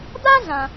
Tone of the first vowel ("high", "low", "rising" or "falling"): high